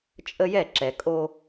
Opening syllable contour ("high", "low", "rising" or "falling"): high